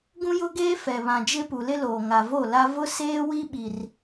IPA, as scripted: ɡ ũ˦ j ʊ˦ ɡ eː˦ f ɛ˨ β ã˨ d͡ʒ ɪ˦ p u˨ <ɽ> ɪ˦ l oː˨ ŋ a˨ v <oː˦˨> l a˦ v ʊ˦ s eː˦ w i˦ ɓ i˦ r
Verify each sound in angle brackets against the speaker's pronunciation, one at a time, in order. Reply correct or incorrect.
incorrect: l, incorrect: o˦˨

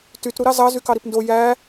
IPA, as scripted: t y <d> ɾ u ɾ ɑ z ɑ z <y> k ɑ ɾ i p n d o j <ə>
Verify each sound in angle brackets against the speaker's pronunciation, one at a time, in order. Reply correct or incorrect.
incorrect: t, correct, incorrect: æ

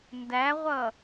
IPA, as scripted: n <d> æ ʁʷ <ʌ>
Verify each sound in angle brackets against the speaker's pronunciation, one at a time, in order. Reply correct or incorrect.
correct, correct

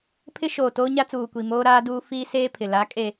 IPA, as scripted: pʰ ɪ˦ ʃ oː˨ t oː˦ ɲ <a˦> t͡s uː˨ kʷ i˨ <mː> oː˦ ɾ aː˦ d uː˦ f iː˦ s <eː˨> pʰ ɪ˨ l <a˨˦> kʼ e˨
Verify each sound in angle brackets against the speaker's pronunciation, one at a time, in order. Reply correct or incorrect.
correct, incorrect: m, incorrect: eː˦, correct

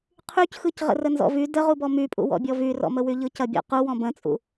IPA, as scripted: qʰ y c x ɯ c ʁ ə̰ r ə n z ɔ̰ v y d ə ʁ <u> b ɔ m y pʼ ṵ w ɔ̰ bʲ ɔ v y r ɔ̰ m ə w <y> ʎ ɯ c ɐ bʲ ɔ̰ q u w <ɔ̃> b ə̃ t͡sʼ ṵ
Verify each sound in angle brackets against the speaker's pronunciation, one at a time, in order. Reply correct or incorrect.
correct, correct, correct

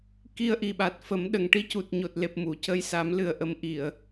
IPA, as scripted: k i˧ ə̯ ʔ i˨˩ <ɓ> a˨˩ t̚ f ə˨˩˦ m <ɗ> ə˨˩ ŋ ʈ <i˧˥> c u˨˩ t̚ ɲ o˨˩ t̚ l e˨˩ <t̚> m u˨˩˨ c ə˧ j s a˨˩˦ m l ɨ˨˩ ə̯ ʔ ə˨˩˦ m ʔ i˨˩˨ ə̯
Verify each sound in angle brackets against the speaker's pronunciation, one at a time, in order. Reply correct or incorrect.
correct, correct, correct, incorrect: p̚

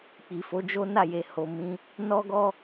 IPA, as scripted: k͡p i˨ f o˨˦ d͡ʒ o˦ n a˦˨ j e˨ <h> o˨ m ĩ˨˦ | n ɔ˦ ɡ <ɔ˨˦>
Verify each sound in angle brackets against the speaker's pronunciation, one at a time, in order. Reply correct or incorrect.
correct, incorrect: ɔ˦

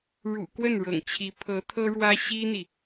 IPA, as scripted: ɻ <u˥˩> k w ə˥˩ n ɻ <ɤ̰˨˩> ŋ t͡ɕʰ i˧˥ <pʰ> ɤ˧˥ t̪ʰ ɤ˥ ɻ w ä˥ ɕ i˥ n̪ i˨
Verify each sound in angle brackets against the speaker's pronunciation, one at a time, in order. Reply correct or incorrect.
incorrect: ṵ˨˩, correct, correct

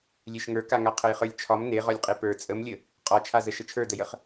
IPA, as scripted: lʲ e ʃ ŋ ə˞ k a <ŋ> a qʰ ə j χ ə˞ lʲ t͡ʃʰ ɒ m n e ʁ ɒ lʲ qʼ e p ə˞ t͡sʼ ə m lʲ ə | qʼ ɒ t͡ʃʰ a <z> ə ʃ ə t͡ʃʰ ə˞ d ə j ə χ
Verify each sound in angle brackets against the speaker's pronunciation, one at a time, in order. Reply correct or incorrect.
correct, correct

